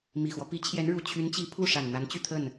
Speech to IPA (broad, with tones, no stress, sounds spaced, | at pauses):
m i˨˩ x w ɔ˦ p i˧˥ t͡ɕʰ j ɛ˧˥ n ɻ u˨˩ t͡ɕʰ y˧˥ n t͡ɕ i˧˥ pʰ u˥˩ ʂ a˨˩ n n̪ a˧˥ n t͡ɕ y˥˧ t̪ʰ ə˥˩ n